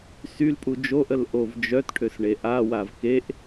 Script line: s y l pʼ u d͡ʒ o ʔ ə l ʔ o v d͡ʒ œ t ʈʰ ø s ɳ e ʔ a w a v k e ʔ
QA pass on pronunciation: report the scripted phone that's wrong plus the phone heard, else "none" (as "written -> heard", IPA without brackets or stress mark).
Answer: none